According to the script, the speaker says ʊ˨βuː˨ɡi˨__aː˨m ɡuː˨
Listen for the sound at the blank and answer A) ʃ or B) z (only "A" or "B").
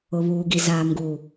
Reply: B